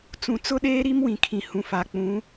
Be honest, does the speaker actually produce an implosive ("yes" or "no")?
yes